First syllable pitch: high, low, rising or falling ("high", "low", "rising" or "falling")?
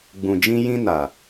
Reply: low